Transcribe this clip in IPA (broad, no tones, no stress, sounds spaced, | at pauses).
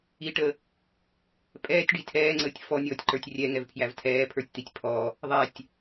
i ʈ ə | pʼ ɛː tʲ ɖ i tʰ ɛː ŋ͡ǀ əː tʲ f ɔ nʲ ɔː tʲ ǃ ə˞ tʲ rʲ ɛ ŋ ɛ v pʰ j æ v tʰ ɛː pʰ ə˞ tʲ t̪ i tʲ pʰ ɔ | ðˤ ɛ tʲ